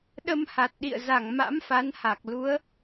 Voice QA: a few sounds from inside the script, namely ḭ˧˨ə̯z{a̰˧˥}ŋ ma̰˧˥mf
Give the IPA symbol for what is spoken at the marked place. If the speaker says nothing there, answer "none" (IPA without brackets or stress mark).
a˧˩